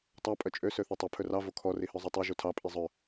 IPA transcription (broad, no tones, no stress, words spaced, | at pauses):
tˤɑ pʼœt͡ʃʼø søθotˤɵ pʰɵrɑ vokʰɔ rihœzˤotˤo ʒutʰɑ pʼizˤœ